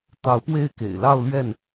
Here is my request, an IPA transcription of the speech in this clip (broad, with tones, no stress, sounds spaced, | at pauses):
t̪ ɑ˨˦ ʊ̯ p w e˥˨ ɪ̯ k ḛ˨˩ ɪ̯ l ɑ˥˨ ʊ̯ l ɥ ɛ˥˨ n